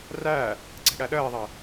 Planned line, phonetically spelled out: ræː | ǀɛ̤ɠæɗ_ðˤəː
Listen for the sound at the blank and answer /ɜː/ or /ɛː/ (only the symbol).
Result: ɜː